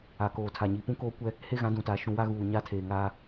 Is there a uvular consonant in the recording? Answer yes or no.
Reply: no